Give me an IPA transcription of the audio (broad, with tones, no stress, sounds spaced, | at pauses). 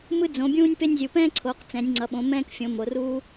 m ɯ˦ d͡z õ˩˧ bʲ ũː˦ nʲ p e˦ nʲ zʲ u˩˧ p ɛ̃ː˦ ǀʰ oː˩˧ q t͡s ɛ̃˩˧ nʲ ŋ͡ǀ ʌ˩˧ ɓ õ˩˧ m ɛ̃ː˦ k fʲ õ˩˧ m o˩˧ r uː˦